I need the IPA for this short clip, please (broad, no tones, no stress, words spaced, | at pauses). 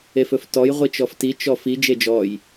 efɵftɔj ʁʷit͡ʃɔfti t͡ʃɔfi d͡ʒed͡ʒɔj